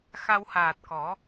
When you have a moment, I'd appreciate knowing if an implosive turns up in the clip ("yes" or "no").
no